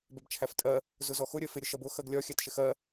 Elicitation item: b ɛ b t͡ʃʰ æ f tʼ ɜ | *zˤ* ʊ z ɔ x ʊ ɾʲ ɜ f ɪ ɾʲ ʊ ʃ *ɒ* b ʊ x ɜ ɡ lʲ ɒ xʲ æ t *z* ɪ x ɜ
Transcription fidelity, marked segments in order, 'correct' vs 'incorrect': incorrect: z, incorrect: ʌ, incorrect: ʃ

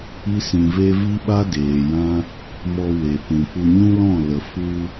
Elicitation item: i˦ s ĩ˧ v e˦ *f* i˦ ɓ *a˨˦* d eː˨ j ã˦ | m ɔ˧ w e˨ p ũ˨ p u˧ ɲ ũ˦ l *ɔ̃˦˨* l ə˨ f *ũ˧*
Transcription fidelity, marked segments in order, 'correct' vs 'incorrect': incorrect: v, incorrect: a˦, correct, incorrect: u˧

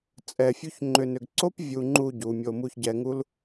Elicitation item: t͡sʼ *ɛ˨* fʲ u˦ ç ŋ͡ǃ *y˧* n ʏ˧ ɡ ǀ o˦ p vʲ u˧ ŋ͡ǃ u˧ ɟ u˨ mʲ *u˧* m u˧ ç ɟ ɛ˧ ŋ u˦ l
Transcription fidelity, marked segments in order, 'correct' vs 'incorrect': incorrect: ɛ˧, incorrect: ʏ˧, incorrect: o˧

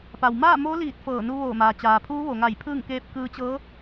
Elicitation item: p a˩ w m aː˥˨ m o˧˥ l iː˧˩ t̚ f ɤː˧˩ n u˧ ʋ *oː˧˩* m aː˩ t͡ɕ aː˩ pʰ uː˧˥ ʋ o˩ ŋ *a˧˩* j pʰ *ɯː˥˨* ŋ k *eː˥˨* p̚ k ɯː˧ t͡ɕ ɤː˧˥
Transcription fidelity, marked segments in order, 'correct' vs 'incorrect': correct, correct, correct, incorrect: eː˧˥

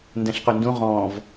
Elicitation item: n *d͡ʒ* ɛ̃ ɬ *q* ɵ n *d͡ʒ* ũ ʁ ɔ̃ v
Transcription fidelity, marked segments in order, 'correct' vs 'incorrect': incorrect: d, correct, incorrect: d

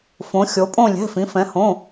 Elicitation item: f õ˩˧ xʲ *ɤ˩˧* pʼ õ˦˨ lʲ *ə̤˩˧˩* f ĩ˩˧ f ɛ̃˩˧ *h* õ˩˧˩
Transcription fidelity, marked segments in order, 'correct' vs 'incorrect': incorrect: o˩˧, incorrect: ɛ̤˩˧˩, correct

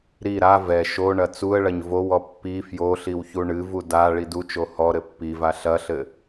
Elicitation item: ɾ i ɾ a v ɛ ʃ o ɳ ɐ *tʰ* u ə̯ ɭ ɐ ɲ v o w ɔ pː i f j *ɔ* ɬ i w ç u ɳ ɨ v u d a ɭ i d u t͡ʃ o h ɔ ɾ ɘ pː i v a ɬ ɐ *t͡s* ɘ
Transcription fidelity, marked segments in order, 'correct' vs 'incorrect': incorrect: t͡s, incorrect: o, incorrect: ɬ

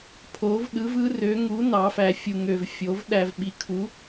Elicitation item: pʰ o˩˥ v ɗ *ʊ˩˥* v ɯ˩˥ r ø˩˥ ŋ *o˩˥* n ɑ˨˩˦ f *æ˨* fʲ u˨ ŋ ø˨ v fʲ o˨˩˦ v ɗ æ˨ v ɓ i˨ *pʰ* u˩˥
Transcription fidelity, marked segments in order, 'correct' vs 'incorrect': incorrect: ɯ˩˥, incorrect: u˩˥, correct, incorrect: kʰ

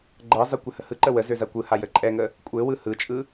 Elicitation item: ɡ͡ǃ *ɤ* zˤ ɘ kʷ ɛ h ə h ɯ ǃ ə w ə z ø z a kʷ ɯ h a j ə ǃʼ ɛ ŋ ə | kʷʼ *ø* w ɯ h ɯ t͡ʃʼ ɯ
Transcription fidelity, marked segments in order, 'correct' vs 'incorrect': correct, incorrect: ɘ

